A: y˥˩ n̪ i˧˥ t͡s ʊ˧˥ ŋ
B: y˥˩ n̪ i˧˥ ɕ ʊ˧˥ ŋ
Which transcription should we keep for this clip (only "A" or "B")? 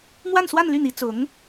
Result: A